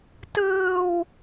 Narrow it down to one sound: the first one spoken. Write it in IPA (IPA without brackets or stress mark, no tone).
t